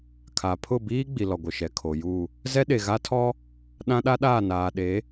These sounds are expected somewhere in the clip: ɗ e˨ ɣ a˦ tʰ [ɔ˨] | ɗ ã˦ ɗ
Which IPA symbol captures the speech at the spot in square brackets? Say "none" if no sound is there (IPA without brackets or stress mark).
ɔ˦